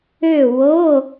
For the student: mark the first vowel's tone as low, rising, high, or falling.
falling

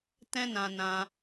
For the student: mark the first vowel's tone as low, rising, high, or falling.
high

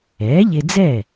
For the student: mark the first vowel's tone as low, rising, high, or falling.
rising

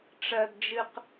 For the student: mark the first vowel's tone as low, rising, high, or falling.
low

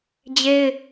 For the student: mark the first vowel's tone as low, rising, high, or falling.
high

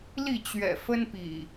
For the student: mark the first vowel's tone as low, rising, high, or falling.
falling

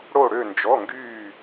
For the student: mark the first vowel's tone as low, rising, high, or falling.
falling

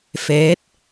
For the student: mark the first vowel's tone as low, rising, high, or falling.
rising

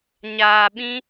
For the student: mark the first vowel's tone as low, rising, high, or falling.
low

